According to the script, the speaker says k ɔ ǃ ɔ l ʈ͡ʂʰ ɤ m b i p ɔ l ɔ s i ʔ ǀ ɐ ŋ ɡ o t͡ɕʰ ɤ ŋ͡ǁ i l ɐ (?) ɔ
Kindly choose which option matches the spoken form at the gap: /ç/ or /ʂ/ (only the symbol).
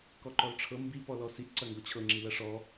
ʂ